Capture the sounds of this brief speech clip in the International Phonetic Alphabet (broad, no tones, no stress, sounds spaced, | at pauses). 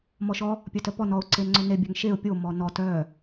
m ɔ ʃ ɔ | pʲ œ t œ p ɔ n ɔ ʊ̯ ǀ e n ŋ͡ǀ œ n e bʲ œ ŋ ʃ e ʊ̯ pʲ o m ɔ n ɔ t œ